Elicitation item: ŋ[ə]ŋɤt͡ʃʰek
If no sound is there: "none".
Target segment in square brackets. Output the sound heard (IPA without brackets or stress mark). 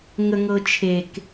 ə